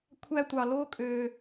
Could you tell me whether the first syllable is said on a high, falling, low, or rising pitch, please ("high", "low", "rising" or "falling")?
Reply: high